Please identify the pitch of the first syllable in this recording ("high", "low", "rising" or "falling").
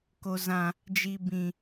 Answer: high